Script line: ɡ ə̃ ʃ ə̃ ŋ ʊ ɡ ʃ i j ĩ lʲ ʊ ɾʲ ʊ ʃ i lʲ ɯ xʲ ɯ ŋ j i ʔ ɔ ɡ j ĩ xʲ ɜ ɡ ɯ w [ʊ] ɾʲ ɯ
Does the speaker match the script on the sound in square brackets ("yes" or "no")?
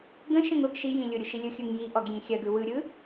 no